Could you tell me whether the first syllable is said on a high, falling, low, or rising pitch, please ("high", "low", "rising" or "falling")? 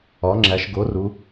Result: rising